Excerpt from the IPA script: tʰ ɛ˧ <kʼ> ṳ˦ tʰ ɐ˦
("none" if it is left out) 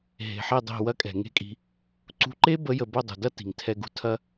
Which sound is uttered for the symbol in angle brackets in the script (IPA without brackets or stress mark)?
ɡ